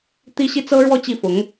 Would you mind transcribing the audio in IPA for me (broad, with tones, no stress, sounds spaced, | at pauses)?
t̪ i˥ ɕ i˥ t͡s ɤ˥ ɻ w ɔ˥˧ t͡ɕ i˥˩ f ʊ˧˥ ŋ